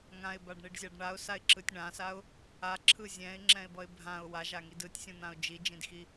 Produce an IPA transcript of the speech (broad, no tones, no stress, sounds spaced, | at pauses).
ŋ ã ɪ̯ b a ɖ ɳ i ɖ zʲ a ɖ ɳ a ʊ̯ s a ɪ̯ ǁ ɯ tʲ ɳ ã s a ʊ̯ | a ǁʰ ɯ zʲ ɛ̃ ɪ̯ ŋ͡ǁ ɛ̃ ɪ̯ b ʌ ɪ̯ bʱ ã ʊ̯ w a ʒ a ŋ i d ɯ tʲ sʲ ũ n̪ ã ʊ̯ d͡ʒ i d͡ʒ ĩ d x i